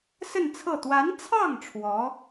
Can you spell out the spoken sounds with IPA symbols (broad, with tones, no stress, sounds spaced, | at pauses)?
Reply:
s ə˥˧ n t͡sʰ ɤ˥˩ t̪ w a˧˥ n t͡sʰ ɑ˥˩ ŋ ʈ͡ʂʰ w ɔ˧˥